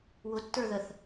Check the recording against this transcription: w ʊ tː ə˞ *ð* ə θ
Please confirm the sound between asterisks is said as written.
yes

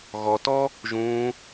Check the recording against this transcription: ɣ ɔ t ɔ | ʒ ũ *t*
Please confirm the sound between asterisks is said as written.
no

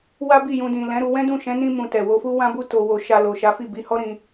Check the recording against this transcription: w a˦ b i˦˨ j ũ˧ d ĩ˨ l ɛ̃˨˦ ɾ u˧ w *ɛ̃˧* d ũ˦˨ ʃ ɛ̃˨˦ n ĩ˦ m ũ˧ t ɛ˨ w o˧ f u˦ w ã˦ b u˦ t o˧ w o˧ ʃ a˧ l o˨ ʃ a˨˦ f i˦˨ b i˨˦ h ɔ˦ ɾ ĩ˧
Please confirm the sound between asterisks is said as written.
no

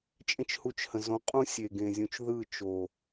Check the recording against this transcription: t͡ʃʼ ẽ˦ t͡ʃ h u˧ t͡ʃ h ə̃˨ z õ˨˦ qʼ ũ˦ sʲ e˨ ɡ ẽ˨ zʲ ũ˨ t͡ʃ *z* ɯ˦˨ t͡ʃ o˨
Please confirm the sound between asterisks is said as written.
no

